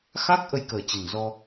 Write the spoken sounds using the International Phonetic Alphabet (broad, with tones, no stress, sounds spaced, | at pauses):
x a˦˥ k̚ ʔ ə˧ j k əː˨˩ t͡ɕ ə˨˩ n z ɔ˧